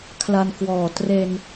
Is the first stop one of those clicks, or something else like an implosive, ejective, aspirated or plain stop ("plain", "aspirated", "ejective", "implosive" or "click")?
aspirated